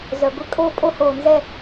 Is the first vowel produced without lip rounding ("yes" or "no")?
no